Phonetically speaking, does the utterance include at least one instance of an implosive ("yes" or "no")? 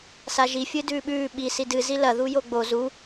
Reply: yes